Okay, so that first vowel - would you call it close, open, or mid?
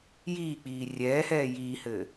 close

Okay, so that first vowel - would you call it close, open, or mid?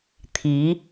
close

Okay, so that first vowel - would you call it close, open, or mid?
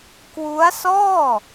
close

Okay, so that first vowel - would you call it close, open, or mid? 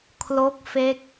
mid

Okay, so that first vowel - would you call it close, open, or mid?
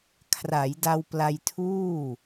open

